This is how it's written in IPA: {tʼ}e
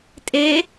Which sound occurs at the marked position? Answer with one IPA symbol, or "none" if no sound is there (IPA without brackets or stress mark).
tʼ